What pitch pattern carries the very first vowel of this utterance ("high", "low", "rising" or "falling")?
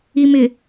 low